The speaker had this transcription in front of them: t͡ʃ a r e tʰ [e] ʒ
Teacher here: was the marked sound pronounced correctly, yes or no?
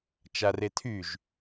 no